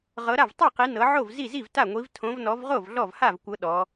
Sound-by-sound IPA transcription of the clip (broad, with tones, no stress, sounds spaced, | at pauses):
ʁ ɤ˨˦ ɾ a˥˩ v tˤ ɛ˥˩ q i˨˦ n ɤ˨˦ ʕ o˥˩ v z i˥˩ z i˥˩ v t a˥˩ ŋʷ i˨˦ v tʰ õ˨˦ v n ɔ˨˦ v ʁ o˥˩ v ɮ ɔ˥˩ v h a˥˩ v kʷ ɤ˨˦ ɗ ɔ˨˦